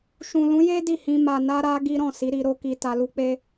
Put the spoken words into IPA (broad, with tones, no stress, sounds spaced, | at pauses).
ʃ ũ˨ l ũ˨˦ j e˦ d i˦˨ h ĩ˧ m a˨ n a˧ ɾ a˧ ɡ i˦ ɾ ɔ̃˦˨ s i˨˦ ɾ i˧ ɾ o˦ k i˧ t a˧ l u˦ k͡p e˦